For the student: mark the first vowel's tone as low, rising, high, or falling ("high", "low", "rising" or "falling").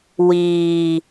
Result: low